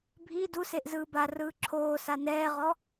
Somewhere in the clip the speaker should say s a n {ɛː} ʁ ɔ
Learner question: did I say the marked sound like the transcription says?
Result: yes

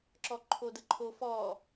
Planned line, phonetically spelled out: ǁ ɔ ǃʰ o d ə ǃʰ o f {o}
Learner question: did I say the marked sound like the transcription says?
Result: no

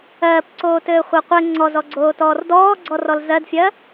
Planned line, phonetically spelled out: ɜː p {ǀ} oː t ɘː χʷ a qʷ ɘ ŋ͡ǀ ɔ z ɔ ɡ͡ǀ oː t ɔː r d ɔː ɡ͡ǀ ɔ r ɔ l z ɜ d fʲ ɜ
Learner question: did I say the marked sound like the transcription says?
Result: yes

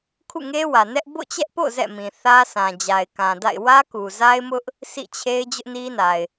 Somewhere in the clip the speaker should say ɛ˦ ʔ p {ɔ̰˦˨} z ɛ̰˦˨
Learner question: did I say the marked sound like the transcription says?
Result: no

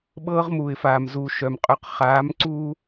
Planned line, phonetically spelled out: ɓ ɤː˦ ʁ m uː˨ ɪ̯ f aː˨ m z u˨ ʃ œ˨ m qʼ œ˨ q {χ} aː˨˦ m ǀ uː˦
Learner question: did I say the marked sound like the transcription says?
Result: yes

